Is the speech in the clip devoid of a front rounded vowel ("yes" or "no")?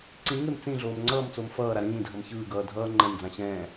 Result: yes